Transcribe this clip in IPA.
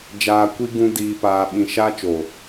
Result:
d͡ʒ aː˧ kʷ i˦ ɡ ũ˦ d iː˧ p aː˧ ɓ ĩ˧ ʃ aː˦ t͡ʃ o˨

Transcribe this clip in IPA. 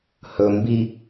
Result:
h ɵ m b i

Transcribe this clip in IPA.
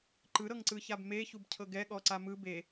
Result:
ǃ ɯ ɾ ɤ ŋ ǀ ɯ ç a b m e ç u b cʰ ɤ ɡ ɛ ɠ ɔ ǀ a m ɯ b e

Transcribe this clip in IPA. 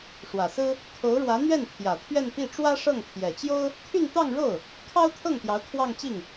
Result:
ʂ w ä˨˩ s ɹ̩˥ | kʰ o˧˥ ʊ̯ ɻ w ä˧˥ n̪ ɥ ɛ˥˩ n t̪ʰ j ä˨˩ t̪ʰ ɥ ɛ˥˧ n p i˥˩ ʈ͡ʂ w ä˥ ʂ ɤ˥˩ ŋ t̪ʰ j ɛ˨˩ t͡ɕ j o˥ ʊ̯ | t̪ʰ y˥˧ n t̪ ɑ˥˧ ŋ ɻ o˥˩ ʊ̯ | kʰ ɑ˥ ʊ̯ t̪ʰ ɤ˥˩ ŋ t̪ j ɑ˧˥ ʊ̯ kʰ w ɑ˥˧ ŋ t͡ɕ i˥˩ ŋ

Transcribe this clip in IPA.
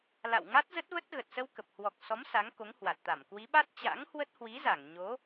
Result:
l a̰˧˨ w ŋ a˦˥ t̚ z ə˦˥ t̚ v ə˦˥ t̚ ɣ ə˨˩ t̚ s ə˧ w k ə˨˩ p̚ h w ɔ˨˩ k̚ s ɔ˨˦ m s a˨˦ ŋ k o˨˦ ŋ h w a˨˩ t̚ t̪ a˧˩ m k w i˨˦ ɓ a˦˥ t̚ t͡ɕ a̰˧˥ ŋ h w ə˦˥ t̚ h w i˨˦ z a˧˩ ŋ ɲ o˨˦

